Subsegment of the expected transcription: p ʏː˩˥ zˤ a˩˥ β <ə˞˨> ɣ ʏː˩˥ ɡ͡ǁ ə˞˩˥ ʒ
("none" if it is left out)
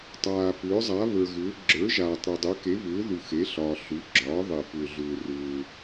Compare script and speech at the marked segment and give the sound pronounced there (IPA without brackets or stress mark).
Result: ə˞˨